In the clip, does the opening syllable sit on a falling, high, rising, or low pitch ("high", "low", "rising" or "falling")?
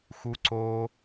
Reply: high